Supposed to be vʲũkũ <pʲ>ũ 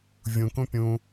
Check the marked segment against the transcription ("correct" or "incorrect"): correct